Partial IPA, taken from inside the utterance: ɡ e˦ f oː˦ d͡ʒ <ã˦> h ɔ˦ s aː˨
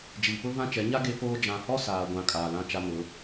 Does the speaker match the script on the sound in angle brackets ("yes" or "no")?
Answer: no